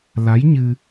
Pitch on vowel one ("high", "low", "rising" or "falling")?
rising